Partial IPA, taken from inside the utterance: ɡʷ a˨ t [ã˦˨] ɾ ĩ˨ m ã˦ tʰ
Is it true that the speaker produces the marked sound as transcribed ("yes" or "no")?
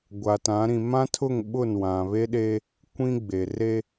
no